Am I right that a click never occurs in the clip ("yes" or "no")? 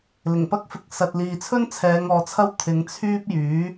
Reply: yes